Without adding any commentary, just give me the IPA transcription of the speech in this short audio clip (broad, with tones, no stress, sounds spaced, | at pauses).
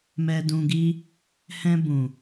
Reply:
m ɛ˧ d ũ˧ ɡ i˦ | h ɛ̃˧ b ũ˨